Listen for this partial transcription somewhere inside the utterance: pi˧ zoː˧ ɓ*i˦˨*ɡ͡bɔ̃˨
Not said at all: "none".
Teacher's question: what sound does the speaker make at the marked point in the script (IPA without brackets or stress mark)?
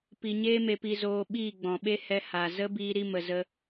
iː˦˨